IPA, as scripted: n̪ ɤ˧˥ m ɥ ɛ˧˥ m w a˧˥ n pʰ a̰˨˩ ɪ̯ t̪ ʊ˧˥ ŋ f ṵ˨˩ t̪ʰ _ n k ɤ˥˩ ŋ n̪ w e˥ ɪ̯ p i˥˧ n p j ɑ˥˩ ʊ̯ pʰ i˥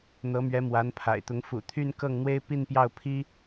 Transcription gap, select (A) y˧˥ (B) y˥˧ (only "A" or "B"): B